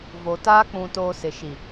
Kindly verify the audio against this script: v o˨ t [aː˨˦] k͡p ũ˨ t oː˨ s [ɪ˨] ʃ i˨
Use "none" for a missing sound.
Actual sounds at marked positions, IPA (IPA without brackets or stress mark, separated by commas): aː˦, ɪ˨